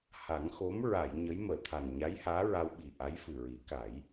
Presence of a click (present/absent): absent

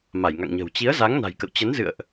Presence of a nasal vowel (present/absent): absent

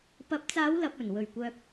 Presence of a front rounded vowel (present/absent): present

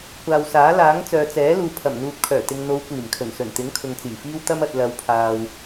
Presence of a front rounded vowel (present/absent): present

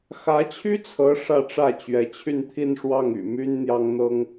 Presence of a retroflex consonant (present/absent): present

